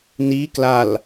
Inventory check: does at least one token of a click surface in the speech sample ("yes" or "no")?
no